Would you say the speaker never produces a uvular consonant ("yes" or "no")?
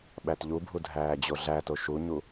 yes